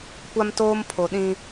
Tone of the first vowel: high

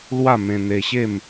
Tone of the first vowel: falling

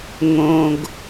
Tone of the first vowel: low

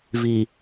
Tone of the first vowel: low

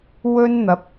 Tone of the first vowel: high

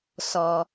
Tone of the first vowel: low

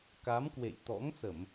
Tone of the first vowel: rising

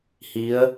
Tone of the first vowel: rising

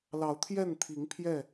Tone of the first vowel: rising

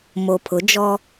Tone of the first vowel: low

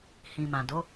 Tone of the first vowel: low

